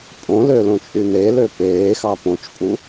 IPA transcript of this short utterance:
pʼ õ l ø l õ t͡ʃʼ y n e l ø p eː x ɑ p õ t͡ʃ pʼ u

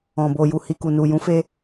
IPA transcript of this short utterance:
ɔ̃˨ b o˨ j u˨ h i˨ k u˨ n u˨ j ũ˨˦ f e˧

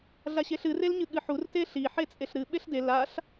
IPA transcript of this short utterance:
ɮ a ɕ e ɬ ɨ r e l ɲ ɨ ɠ ɨ ħ u r t e ɬ i ħ e t͡sʼ e ɬ ɾ ɨ ɓ e ɬ d e l a ɬ

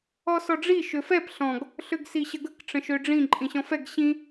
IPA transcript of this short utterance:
ɔ s ɔ ɖ͡ʐ i ʃ ø f ɛ p ɬ ɔ̃ ɡ | ɬ ø ɡ s i ɕ ə ɡ ə k ʈ͡ʂ ə̃ ʃ ø ɖ͡ʐ ĩ ǃʼ ĩ ɕ ɔ̃ f ɛ ɡ ɕ ĩ

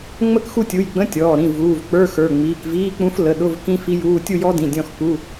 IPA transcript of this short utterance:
ŋ͡m ə˥˧ k x u˥˧ tʲ u˩˧˩ j ɡ͡b ə̃˧˥˧ tʲ ɔː˩˧˩ ɾ ĩ˩˧˩ v uː˩˧˩ v k͡p ə˞˧˥˧ x ə˞˩˧˩ ŋ͡m iː˩˧˩ k v iː˧˥˧ k͡p ũ˦˥ f l ə˩˧˩ ɗ ʊ˧˥˧ v k ĩ˦˥ f i˦˥ j uː˧˥˧ tʲ u˥˧ j ɔ˦˥ d ĩ˩˧˩ dʲ ɔ̃˥˧ x k u˧˥˧

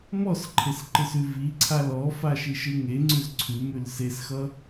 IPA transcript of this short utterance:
m ɔ s ǃʰ e s ǃ ɯ s ʉ v i ǀʰ a l ɔ f a ʃ i ʃ ɯ ŋ e ŋ͡ǀ ʉ z ǀʰ ʉ m ʉ l s e s x ʌ

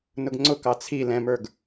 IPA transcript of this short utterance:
n ʊ ɡ ŋ͡ǀ ʊ k ɑ t͡sʰ i l ɛ̃ m ə˞ ɡ

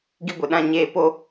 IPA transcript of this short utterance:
ɡ i˧ ɡʷ e˨ ɗ ã˦˨ ɲ eː˧ p o˧

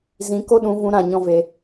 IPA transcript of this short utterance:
z ĩ˨˦ k o˦ ɗ ũ˨˦ v ũ˧ ɾ ã˦˨ ɲ ɔ̃˦ v e˧

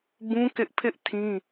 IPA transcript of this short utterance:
b ũ˦ k ɪ˦ ʔ pʰ ɪ˦ ʔ tʰ ĩ˦

